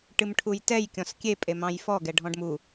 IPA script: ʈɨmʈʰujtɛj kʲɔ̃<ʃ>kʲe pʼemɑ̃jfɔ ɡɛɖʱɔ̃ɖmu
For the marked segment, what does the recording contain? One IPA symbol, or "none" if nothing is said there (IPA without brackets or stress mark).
s